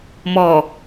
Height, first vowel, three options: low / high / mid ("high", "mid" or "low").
mid